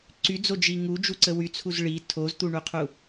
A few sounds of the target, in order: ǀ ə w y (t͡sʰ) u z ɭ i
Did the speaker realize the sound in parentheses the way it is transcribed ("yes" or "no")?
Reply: yes